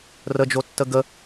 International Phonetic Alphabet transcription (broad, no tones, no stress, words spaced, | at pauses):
rəd͡ʒotːə ɡə